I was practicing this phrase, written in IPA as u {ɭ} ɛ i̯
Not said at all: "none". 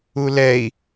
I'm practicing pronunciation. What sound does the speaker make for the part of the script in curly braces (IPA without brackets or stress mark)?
l